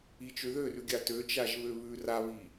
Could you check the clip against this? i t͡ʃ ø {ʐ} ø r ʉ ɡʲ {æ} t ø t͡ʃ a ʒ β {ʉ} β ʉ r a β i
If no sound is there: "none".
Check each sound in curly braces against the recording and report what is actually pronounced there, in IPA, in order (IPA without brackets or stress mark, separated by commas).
ð, a, ø